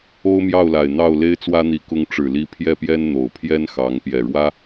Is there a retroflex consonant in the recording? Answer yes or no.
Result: yes